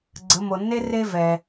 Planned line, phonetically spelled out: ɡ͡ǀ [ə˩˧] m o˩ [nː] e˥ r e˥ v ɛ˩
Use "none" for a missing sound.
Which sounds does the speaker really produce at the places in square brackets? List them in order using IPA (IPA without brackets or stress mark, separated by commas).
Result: ə˩˧, nː